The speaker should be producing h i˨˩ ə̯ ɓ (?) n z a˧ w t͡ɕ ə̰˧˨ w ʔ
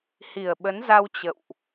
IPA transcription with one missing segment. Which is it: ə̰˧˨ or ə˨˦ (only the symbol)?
ə˨˦